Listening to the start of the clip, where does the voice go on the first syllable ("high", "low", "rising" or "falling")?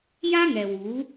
high